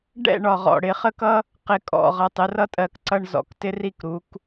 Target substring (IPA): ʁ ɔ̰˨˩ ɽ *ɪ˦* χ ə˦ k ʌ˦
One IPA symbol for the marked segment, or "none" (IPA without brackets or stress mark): ɪ˩˧